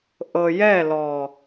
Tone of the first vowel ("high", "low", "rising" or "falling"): low